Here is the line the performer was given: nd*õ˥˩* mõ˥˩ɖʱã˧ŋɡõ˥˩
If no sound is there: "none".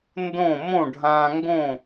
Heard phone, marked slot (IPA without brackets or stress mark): õ˥˩